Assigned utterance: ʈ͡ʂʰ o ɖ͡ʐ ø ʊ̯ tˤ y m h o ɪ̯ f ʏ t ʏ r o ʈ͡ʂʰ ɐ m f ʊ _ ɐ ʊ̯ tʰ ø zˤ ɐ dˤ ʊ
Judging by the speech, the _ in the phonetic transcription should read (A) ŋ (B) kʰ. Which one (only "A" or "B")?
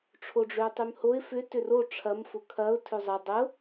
B